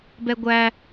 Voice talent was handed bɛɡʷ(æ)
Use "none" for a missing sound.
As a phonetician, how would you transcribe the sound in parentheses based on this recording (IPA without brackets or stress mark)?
æ